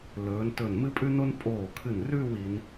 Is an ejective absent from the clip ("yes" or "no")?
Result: no